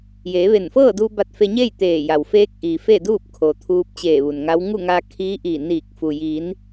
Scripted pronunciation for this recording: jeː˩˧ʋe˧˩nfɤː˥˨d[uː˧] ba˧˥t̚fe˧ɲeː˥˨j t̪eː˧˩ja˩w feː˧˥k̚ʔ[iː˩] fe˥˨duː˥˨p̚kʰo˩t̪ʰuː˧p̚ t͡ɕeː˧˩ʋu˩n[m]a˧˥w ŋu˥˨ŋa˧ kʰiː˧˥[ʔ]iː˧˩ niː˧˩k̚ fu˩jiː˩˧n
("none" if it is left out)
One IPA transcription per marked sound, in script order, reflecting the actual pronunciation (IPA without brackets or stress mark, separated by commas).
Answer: uː˧, iː˩, ŋ, ʔ